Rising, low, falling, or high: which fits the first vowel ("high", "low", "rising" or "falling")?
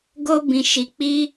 high